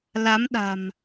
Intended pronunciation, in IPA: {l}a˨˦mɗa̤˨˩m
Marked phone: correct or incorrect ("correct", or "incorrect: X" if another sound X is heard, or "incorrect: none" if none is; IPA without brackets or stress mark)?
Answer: correct